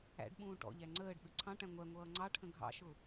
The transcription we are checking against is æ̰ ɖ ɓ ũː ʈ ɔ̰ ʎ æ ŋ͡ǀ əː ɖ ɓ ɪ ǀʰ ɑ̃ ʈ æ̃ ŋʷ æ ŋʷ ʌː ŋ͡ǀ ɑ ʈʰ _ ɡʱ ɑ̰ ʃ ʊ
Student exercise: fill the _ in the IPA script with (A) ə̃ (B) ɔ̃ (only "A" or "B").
A